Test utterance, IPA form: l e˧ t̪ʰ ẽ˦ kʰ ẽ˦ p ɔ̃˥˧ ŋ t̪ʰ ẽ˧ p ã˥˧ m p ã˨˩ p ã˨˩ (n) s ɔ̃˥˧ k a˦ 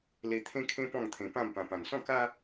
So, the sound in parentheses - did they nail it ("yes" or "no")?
yes